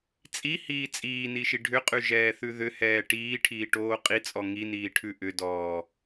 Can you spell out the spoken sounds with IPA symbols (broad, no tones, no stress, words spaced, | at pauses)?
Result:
t͡sʼihiː t͡sʼiːniʃi ɖʱʏqʼʉʒɛːθʉ ðʏhɛː ʈiːʈʰiːʈoː qʼit͡sʼɔ ŋiniːʈʰʉ ʔʏdɔː